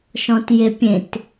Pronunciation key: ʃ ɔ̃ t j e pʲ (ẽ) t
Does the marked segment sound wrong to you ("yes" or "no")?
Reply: no